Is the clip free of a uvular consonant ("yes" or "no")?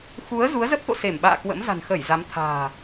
yes